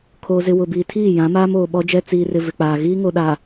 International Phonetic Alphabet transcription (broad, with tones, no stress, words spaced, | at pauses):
kʰoː˦zɪ˦ wʊ˨biː˨tʰiː˦˨ jã˨˦maː˦moː˨ ɓɔ˦d͡ʒɛ˦ t͡siː˨rɪ˨ vɪ˨k͡paː˨ ɣiː˦ŋo˨ɗa˨